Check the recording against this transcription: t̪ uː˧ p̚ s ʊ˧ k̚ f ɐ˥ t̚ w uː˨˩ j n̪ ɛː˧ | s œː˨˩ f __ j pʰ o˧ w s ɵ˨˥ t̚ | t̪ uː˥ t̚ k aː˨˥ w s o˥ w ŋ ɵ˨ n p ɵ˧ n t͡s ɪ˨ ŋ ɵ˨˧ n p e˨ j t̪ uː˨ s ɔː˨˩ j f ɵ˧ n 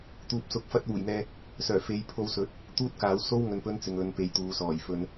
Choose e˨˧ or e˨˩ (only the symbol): e˨˧